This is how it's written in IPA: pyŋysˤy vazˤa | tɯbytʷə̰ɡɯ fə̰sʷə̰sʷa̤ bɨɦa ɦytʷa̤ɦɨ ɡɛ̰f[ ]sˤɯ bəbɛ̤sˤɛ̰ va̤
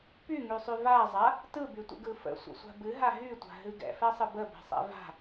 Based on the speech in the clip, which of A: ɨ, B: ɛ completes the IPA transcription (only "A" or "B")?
B